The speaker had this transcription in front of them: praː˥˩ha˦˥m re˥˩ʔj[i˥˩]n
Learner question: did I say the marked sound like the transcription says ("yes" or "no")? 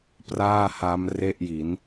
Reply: no